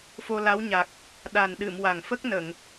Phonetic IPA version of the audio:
f o˧ l a˧˥ w ɲ a˨˩ k̚ | ɗ a˨˩ n ɗ ɨ˨˩˨ m w a˨˩ ŋ f ə˦˥ k̚ n ə˨˩˨ ŋ

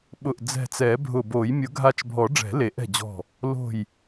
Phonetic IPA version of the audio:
ɓ ʊ˧˩ ʔ d͡z ɛ̤˧˩ t͡s ɛ˨˩˦ bʱ ʊ˧˩ b o˨˩˦ j mʲ ʊ˨˩˦ ɡʱ a˧˩ t͡ʃ bʱ ɔ˨˩˦ ɖ͡ʐ ɛ̤˨˩˦ l e˨˩˦ ʔ ɛ̤˧˩ d͡ʑ ɔ̤˧˩ | l o̤˧˩ j

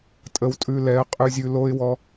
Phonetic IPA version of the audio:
tʼ ə˨ w tʼ ʉ˨ l ɛ˨˦ ə̯ qʼ ʉ˨ zʲ ʉ˨ l o˦ ɪ̯ w ɔ˦

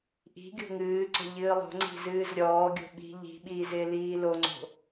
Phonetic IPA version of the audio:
ʔ i̤ ɡʲ o̤ ŋ ɨː ǀ ɔ̤ ʎ ɨː lˠ o̤ ŋ͡ǀ i̤ z ɨː z ɾʲ ɔː ɡʲ o̤ ɓ i̤ ʎ i̤ ɓ iː z ɪː l iː l o ŋ͡ǀ o̤

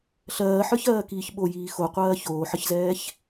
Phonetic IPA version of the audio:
ɬ ɜː ħ ə˞ ç ɜː k iː ç ɓ o j iː x o qʷ ɜː ç oː ħ ə ç z ɛː ç

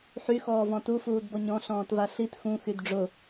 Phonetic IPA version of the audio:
ħ y x ɔː v ɔ̃ t u f uː d b ɔ ɲ ɔ̃ ɬ ɔ̃ː t v a ɬ i t x ũ x y d ɖ͡ʐ ʊ

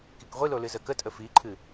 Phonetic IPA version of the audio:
k i k ʁʷ i l o l ɨ z ə k ə tʼ ə f i ǃʰ ɨ

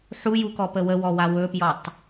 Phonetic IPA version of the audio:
ħ u j u k ɔ p ə w ə w ɔ w a w ɵ p j ɔ tˤ

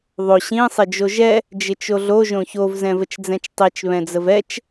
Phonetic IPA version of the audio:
ðˤ o ɕ ĩ sˤ ɪ d͡ʒ o ʒ ɛ | d͡ʒ ɪ t͡ʃ o ɮ o ʒ õ ç o v z ɛ̃ v ə t͡ʃ d͡z ɛ̃ t͡ʃ tˤ i t͡ʃ β ɛ̃ d͡z ə v ɛ t͡ʃ

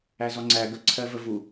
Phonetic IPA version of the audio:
æ z ɔ ŋ͡ǀ æ ɡ ə ǀʰ ɜ v ə v u

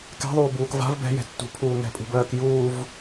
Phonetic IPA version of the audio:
k ɛ̤ ðˤ uː b uː k v a̤ v b ɛ̤ j ɛ̤ tː ṳ pʰ uː ŋ ɛ̤ pʼ ṳ b ɜː k j uː v

